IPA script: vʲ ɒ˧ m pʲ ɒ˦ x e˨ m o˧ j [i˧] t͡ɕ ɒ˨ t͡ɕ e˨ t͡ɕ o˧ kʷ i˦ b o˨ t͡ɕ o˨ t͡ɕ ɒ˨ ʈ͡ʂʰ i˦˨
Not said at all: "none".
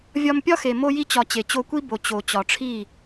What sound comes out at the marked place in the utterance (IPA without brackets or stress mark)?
i˧